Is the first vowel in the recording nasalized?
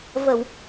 no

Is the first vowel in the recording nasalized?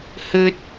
no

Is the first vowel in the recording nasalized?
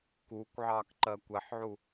no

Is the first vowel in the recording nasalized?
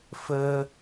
no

